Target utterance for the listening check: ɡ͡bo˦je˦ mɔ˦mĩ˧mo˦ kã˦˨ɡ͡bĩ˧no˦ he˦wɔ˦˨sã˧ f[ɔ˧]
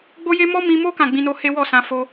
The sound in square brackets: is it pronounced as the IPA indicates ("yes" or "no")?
no